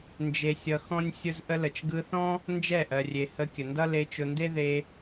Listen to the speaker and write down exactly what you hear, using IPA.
n d͡ʒ e˧ sʲ ʌ˧ x ɔ̃˦ nʲ sʲ ʊ˧ z ʔ ə˧ l ə˨ t͡ʃ ɡ ɯ˧ θ ɔ̃˦ | n d͡ʒ ɛ˦˨ ʔ ɜ˨ rʲ e˨ h ə˧ kʲ ə˨ n d ʌ˦ l e˧ t͡ʃ ʊ˧ n d e˦ ð e˧

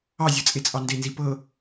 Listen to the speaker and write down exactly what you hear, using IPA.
ɑ zʲ ɤ t͡sʼ e t͡sʼ ɑ n d e n z i p ɤ

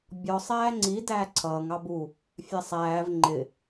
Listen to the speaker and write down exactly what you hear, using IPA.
bʲ ɔ sˤ æː ŋ͡ǀ i d æː ǀʰ ʌː ŋ ɑ b u | fʲ æ sˤ æː v ŋ͡ǃ ɪ

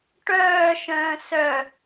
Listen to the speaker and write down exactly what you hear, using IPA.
ʈ œː ʃ œ̃ː s œ

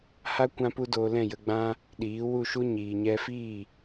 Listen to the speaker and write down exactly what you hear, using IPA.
h a˦ kʷ ã˦ p u˦ d oː˧ l ɛ̃˦˨ j ə˧ ɡ͡b ã˦ | ɗ iː˨˦ w u˦˨ ʃ u˦ ɲ iː˨ ɲ ɛ˧ f iː˦˨

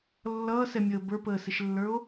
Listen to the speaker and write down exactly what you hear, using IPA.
lː ʌː s ɛ mʲ əː b ə˞ p əː s ɪ ʃ lː ə˞ o̯

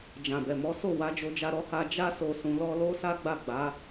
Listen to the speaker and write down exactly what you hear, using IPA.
d͡ʒ ã˨ b ɛ˨ m ɔ˨˦ s o˦˨ w a˨˦ d͡ʒ o˧ d͡ʒ a˧ ɾ ɔ˧ h a˧ d͡ʒ a˧ s o˨ s ũ˨˦ l ɔ˦ l o˦ s a˦ ɡ͡b a˦˨ ɡ͡b a˨˦

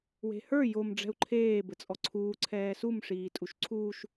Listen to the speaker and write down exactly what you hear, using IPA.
w e̤ h ə˞ j o m ɖ͡ʐ ɛ̤ u̯ ǃʰ eː b ɘ t͡sʼ ɔ ǀʰ uː ǀʰ ɛː s u m ʂ iː tʼ u ʃ ǀʰ uː ʃ

